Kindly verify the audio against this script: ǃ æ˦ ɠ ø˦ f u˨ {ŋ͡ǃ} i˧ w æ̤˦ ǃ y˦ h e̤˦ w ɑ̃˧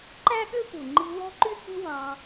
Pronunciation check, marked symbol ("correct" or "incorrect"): correct